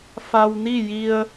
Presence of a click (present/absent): absent